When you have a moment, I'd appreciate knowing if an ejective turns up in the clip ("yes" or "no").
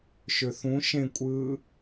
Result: yes